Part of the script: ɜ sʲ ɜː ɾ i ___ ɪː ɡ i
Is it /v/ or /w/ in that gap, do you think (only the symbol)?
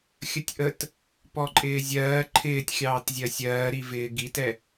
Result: v